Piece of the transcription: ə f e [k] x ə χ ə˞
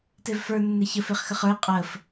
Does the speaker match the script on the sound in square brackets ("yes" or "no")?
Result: no